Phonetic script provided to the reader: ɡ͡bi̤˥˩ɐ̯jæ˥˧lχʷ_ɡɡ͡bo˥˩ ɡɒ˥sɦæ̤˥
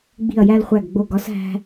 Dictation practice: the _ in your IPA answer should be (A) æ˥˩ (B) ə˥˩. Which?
A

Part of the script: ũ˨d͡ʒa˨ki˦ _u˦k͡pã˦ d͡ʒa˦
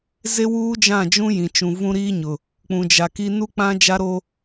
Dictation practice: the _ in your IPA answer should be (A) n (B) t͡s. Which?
A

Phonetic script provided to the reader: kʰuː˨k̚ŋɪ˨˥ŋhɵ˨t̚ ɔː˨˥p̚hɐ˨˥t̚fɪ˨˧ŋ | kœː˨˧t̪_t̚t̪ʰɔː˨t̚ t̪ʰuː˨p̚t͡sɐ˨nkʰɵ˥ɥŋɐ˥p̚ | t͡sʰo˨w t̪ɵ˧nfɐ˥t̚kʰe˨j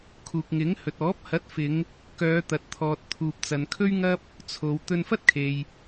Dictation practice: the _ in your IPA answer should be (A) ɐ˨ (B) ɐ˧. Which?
A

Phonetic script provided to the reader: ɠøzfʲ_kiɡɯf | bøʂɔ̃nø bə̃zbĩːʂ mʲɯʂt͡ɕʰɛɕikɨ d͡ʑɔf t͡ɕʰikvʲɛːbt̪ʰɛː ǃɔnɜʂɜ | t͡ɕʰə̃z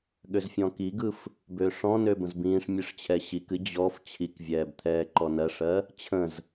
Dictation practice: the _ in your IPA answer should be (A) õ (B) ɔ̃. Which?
B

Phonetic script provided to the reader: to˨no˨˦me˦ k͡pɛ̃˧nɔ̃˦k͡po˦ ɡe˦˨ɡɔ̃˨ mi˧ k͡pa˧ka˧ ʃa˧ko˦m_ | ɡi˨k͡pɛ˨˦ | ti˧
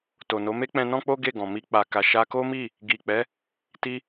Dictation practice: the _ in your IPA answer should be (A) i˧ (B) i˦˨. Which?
B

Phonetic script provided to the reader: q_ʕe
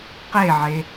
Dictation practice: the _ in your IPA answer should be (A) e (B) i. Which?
A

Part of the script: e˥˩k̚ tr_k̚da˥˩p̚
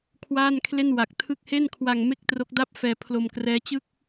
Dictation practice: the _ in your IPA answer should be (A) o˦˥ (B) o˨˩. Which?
A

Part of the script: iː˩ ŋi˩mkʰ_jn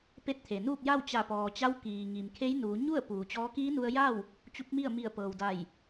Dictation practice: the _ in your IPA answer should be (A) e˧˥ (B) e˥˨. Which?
A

